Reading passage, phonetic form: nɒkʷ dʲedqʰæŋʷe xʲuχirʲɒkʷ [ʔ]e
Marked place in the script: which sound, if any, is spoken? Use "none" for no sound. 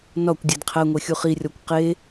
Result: q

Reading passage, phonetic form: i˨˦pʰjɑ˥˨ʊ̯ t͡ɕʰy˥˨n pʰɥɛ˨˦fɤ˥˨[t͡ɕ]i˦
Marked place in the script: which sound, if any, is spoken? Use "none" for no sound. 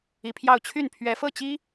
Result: t͡ɕ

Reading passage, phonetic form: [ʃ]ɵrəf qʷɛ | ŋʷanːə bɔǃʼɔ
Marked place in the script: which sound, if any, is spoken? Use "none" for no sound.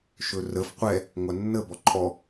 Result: ʃ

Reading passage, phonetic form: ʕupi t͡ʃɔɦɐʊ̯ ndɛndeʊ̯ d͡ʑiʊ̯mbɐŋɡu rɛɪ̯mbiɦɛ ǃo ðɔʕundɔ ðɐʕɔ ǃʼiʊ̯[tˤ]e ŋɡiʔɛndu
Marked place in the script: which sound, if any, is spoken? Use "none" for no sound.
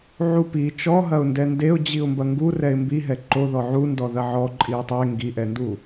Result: tˤ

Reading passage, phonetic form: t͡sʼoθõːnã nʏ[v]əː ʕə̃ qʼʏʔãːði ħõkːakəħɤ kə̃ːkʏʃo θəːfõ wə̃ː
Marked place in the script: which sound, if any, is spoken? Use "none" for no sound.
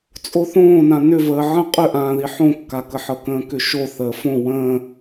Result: v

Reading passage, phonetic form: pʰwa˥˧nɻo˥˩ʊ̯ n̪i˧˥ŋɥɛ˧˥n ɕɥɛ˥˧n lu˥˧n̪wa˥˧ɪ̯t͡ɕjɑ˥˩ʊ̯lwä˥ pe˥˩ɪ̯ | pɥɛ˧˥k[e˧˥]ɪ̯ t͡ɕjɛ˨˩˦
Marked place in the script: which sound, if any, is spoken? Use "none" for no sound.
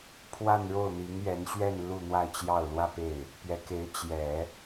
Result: e˧˥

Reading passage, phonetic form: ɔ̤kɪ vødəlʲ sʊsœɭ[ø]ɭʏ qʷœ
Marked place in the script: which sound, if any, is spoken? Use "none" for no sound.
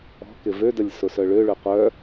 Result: ø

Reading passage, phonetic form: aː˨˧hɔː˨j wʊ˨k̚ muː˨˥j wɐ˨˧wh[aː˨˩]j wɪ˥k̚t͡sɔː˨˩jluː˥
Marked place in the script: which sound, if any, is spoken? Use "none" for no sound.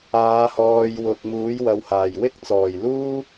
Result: aː˨˩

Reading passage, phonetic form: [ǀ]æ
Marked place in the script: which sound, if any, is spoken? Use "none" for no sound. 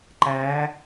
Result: ǃ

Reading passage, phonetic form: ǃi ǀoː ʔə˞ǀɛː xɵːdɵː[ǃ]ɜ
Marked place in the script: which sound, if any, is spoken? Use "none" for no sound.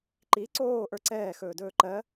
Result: ǃ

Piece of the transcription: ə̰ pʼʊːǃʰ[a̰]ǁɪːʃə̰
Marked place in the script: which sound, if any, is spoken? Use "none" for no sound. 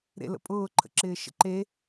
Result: ə̰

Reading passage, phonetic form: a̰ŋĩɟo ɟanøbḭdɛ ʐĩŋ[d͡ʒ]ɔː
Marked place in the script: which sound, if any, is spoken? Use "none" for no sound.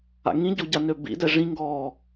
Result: ɡ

